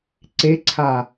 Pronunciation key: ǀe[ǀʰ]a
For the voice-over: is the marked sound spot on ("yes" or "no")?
yes